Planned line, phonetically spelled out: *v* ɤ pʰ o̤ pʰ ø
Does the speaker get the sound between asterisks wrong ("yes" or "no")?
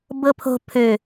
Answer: yes